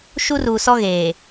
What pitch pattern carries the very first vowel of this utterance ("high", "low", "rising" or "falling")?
high